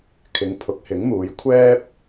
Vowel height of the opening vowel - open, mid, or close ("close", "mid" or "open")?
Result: close